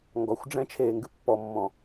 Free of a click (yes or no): yes